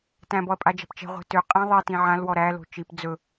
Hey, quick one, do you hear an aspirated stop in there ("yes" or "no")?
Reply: no